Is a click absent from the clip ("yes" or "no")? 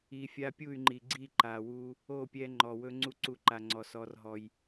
no